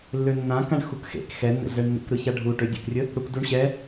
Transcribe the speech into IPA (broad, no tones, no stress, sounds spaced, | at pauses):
lː ø nː ã k ã ɳ x u k x ḛ k x ɛ nː ɛ̰ ɮ ɛ ɳ nː ḛ k ɾ ɯ ç a ɖʱ u ʈ ø dʲ ḛ k rʲ ə | ɽ u k d u ɳ ɕ ɛ